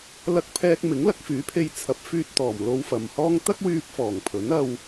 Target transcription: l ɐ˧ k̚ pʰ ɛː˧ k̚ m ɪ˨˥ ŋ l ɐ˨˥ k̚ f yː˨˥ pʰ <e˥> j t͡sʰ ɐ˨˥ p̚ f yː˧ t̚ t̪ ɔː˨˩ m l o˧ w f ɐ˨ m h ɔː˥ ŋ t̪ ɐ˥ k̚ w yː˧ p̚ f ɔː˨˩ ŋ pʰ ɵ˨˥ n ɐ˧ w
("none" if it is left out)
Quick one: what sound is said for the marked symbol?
e˧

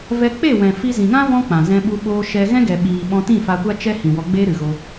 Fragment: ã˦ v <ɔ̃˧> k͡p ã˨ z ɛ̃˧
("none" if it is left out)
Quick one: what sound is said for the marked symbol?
ɔ̃˦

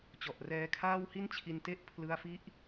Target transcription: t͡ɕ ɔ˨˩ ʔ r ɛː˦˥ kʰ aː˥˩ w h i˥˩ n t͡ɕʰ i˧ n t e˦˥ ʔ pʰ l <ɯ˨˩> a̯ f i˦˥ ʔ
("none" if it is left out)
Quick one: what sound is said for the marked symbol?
ɯ˧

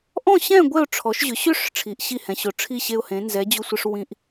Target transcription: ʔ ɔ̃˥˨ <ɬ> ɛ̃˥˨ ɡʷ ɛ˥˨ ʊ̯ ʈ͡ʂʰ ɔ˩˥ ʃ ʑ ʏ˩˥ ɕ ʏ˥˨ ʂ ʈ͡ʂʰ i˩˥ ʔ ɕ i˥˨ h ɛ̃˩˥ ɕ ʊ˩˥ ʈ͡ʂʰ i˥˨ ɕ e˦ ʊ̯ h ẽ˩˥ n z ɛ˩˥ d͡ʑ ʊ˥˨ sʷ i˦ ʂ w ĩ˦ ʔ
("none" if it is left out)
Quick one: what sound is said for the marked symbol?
ɕ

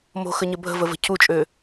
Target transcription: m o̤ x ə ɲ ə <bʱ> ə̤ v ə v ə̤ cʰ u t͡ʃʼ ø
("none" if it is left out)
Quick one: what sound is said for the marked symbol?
bʱ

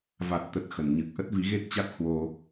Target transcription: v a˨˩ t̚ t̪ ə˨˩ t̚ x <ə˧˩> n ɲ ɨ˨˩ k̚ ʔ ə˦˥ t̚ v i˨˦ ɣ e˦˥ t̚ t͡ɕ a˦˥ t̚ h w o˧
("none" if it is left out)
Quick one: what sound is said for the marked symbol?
ə˧˩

